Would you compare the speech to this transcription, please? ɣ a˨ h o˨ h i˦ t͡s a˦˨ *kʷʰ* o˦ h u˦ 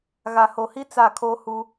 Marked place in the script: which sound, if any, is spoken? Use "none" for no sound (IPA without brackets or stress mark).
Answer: kʰ